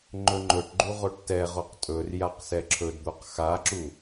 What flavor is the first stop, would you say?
click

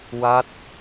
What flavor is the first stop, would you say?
plain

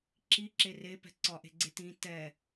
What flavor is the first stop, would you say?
click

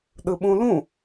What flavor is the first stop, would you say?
implosive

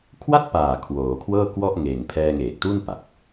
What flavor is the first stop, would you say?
aspirated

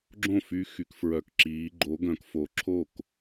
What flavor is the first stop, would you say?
click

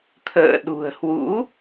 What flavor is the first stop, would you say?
aspirated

